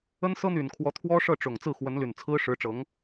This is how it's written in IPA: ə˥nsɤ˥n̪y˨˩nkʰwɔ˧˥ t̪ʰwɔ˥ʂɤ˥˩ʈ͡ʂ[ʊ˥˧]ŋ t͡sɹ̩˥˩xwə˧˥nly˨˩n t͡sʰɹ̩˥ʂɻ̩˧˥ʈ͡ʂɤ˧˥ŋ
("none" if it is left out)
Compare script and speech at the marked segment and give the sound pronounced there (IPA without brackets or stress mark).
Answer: ʊ˨˩